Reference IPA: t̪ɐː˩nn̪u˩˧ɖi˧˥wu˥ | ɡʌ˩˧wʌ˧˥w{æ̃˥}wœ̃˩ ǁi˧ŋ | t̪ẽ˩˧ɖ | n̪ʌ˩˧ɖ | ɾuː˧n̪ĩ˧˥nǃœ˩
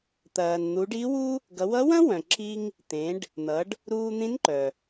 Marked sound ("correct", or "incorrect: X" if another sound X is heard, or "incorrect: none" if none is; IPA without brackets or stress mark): incorrect: ɐ̃˥